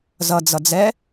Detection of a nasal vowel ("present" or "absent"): absent